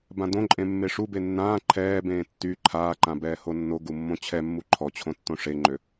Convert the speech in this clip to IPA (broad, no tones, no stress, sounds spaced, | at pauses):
b ã d õ ǃʼ ẽ mː e ʂ u b e nː ãː ǃʰ ɛː b ẽː tː y ǃʰ aː ǃ ã b ɛː h o nː o ɡ u mː õ t͡ɕʰ ɛ mː u ǃʰ ɔ t͡ɕʰ õ tː õ ʂ e ŋ͡ǃ ø